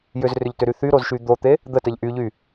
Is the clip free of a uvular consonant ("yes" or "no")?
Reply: yes